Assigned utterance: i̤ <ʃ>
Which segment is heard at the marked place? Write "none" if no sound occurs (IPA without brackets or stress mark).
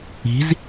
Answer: z